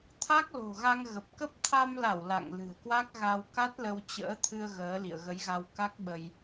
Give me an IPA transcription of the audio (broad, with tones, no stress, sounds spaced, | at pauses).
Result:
t̪ʰ a˦˥ k̚ l o̤˨˩ ɣ a˧ ŋ ɣ ə˨˩ p̚ k ə˦˥ p̚ t̪ʰ a˧ m l a˧˩ w l a̰˧˨ ŋ l ɨ̤˨˩ ə̯ k w a˦˥ k̚ ɣ a˧ w k a˦˥ t̚ l ə˧ w t͡ɕ ə̰ː˧˥ t̪ʰ ɨ˧ ə̯ ɣ əː˨˦ l ḭ˧˨ ə̯ ɣ ə˨˦ j ɣ a˧ w k a˦˥ k̚ ɓ ə˧ j